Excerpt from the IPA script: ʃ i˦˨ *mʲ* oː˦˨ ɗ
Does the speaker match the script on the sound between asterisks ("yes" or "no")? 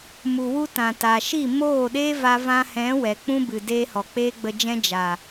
no